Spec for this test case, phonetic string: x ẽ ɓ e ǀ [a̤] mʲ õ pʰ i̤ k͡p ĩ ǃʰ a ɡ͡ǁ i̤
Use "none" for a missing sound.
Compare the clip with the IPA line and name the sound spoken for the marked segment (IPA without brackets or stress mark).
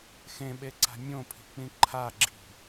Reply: a̤